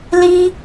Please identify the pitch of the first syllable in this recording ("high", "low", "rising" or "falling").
high